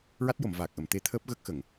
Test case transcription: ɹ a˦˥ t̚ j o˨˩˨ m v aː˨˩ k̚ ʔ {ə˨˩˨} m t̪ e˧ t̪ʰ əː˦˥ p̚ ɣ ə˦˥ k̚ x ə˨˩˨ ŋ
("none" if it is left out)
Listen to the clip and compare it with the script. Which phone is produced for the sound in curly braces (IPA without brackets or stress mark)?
ə˨˩˨